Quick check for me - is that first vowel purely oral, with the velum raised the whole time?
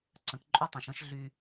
no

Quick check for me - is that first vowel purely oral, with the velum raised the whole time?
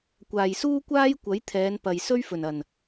yes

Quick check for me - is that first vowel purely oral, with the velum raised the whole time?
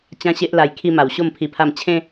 no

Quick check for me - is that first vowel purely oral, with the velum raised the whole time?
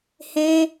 no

